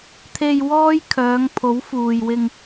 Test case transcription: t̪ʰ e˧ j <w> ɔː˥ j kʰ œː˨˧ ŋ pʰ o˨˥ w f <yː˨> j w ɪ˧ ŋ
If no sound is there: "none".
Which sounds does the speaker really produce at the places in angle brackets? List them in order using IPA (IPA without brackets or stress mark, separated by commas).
w, uː˨